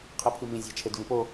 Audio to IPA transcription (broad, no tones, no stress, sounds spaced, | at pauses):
qʰ e pʰ i m ĩ zʲ æ̤ t͡ʃʰ e d v ĩ p o